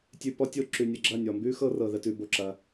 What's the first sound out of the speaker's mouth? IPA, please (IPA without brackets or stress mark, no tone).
tʲ